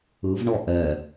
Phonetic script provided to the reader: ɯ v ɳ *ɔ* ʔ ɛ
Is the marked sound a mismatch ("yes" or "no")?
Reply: no